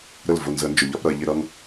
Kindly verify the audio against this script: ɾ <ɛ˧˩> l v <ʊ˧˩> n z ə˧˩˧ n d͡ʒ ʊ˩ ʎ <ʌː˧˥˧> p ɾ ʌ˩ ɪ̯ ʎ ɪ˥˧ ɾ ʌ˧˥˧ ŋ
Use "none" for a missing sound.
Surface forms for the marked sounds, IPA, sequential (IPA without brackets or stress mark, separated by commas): ə˧˩, ʊ˧˩, ʌ˧˥˧